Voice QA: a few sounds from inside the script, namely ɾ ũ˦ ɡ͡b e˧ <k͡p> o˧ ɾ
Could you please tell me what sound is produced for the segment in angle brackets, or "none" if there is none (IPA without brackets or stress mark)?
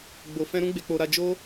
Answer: k͡p